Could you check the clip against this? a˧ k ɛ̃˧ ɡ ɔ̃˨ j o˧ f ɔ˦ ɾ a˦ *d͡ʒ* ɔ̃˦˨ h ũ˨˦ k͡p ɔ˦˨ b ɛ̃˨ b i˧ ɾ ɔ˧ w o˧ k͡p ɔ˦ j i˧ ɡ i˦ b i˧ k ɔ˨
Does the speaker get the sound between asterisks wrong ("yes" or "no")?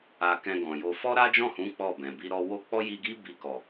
no